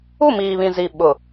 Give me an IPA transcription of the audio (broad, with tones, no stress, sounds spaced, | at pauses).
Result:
u˦˨ m iː˨ β ĩ˨ z i˨ ɓ ʊ˨